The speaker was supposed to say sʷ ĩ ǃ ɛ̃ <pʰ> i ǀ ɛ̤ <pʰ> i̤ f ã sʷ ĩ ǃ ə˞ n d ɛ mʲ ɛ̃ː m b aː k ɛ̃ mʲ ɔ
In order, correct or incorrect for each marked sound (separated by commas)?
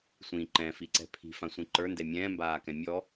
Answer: incorrect, correct